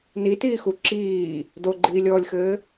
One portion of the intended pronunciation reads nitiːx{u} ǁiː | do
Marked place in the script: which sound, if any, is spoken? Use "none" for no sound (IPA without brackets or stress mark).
u